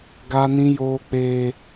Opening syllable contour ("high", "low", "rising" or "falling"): high